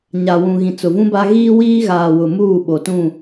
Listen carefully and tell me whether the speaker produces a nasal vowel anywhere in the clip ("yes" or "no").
yes